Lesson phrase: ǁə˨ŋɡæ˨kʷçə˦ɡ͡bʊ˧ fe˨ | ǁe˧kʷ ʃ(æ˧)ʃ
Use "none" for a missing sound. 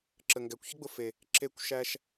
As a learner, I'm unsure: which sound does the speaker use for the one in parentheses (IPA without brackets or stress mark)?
æ˧